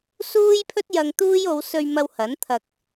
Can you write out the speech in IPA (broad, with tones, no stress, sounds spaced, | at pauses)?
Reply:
s uː˥ j pʰ ɵ˥ t̚ j ɐ˧ ŋ t̪ uː˥ j o˨˧ w s ɵ˧ ɥ m ɐ˧ w h ɐ˨˥ n t̪ʰ ɐ˧ k̚